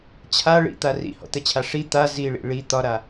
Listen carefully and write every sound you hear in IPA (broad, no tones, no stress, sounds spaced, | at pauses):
t͡ɕʰ a ɭ ḭ t̪ a r ḭ h ɔ̰ t̪ ɛ t͡ɕʰ a ʂ i t̪ a z i ɭ ḭ ɭ i t̪ ɒ ɾ a